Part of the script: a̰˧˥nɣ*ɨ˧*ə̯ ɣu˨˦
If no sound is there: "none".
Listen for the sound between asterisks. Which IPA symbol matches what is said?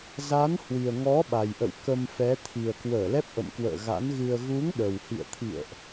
ɨ˧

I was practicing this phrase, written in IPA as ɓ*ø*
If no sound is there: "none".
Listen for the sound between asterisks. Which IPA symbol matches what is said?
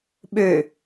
ø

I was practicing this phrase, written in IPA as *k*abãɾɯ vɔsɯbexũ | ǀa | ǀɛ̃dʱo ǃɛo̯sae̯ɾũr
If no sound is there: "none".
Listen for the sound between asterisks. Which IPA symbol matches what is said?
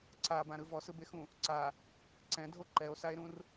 ǀ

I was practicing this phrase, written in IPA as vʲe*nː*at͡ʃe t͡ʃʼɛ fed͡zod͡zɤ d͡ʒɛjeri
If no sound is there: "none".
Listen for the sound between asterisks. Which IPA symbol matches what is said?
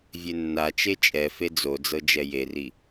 nː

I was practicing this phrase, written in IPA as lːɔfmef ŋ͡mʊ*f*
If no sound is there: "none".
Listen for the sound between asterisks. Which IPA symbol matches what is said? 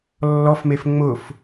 f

